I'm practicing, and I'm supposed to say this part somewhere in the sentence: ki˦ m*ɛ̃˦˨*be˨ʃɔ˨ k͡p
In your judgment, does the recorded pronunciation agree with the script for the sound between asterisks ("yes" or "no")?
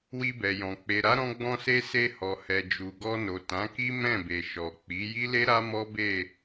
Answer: yes